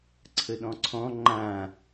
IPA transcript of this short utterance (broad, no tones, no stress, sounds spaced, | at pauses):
ǀʰ ə ɗ ɔ̃ ǀʰ ɔ̃ ŋ͡ǃ ã